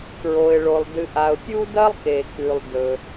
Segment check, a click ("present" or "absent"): absent